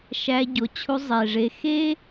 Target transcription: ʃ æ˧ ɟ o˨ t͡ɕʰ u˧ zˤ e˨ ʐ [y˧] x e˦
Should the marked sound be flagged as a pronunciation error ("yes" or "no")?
yes